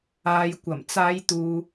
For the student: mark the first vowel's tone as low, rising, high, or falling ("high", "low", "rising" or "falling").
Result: low